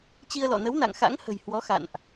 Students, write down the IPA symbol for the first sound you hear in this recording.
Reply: t͡ɕ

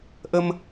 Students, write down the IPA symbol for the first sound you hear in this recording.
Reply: ʔ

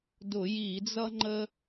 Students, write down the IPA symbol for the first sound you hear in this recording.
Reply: d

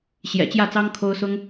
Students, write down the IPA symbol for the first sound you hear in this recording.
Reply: ɕ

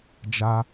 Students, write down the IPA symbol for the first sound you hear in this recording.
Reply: d͡ʒ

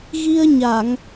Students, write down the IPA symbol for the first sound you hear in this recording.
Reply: ɣ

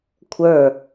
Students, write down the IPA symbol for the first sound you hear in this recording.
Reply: kʷʰ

